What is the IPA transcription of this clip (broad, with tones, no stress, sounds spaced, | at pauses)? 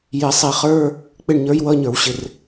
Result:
j ɪ˧˩˧ sˤ i˧˩˧ χ ə˞˧˥˧ | k͡p ɪ˦˨ ɳ ɲ ə˞˧˥ j w ʌ˧˥˧ ɲ ə˞˧˩˧ w ɕ ɪ˨˩ r